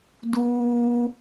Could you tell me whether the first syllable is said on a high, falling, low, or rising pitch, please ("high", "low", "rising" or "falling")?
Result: high